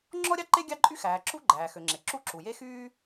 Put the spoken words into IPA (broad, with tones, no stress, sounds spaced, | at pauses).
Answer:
ŋ͡ǁ ɔ˥ ɾʲ ɑ˥ ǃ e˥ ɡʲ ɑ˥ ǃʼ y˥ x æː˩ ǁ u˥ ɡ͡ǃ æː˩ x ø˩ ŋ͡ǁ e˩ ǁ u˥ ǁ u˩ j e˥ x yː˥